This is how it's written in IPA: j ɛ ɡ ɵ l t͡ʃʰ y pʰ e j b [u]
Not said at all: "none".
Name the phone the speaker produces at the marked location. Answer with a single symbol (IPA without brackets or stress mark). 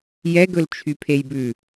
ʉ